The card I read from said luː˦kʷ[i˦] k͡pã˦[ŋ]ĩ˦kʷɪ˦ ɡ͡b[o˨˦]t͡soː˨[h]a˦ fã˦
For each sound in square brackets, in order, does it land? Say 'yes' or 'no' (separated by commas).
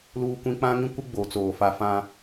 no, yes, yes, no